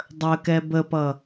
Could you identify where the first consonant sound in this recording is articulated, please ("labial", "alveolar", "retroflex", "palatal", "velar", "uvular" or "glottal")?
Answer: alveolar